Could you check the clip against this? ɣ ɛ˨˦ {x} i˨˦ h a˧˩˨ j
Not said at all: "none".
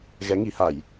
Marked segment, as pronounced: ŋ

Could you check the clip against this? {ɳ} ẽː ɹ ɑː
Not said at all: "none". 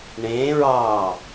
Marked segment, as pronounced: ɳ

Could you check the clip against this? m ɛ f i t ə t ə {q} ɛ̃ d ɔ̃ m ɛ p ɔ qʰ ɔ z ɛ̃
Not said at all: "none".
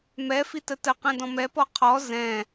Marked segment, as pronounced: q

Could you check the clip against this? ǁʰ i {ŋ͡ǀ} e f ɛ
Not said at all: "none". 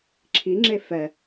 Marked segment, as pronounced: ŋ͡ǁ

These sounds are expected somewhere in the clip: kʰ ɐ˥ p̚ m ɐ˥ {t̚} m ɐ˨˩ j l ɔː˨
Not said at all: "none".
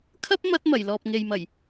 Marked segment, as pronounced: t̚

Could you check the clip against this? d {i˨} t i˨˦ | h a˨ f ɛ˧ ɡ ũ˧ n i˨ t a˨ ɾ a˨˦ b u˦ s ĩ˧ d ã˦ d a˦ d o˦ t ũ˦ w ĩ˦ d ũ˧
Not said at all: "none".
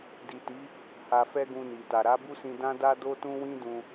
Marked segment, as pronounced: i˨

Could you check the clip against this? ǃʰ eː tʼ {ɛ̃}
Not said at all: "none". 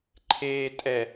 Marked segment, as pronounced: ɛ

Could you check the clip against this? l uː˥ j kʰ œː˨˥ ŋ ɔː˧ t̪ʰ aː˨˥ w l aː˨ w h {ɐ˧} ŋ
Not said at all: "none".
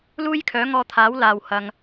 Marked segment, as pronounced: ɐ˨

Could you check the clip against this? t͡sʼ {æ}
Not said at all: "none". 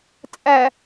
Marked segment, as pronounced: æ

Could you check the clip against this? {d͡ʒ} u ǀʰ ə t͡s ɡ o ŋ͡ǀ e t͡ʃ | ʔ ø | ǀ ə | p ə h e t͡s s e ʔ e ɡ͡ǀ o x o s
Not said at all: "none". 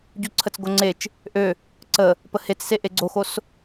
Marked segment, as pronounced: ɟ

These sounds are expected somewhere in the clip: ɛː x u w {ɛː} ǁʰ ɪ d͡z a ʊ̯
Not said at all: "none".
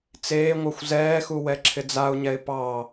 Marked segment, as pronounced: ɛ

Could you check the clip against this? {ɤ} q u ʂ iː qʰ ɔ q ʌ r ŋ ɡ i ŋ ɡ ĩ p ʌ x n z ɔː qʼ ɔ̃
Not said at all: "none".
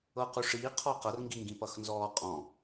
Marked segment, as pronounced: ɤ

